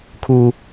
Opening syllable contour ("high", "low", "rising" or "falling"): high